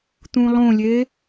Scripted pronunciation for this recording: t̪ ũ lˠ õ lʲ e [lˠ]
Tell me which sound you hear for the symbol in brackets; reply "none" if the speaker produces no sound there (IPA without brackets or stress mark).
none